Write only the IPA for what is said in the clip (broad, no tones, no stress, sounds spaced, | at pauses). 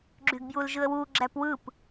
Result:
ɡ͡ǁ y ɡ b j u l ʒ ɯ ə̯ w u ɡ͡ǁ æ p w ɯ p